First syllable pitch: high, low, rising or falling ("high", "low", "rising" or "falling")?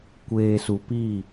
low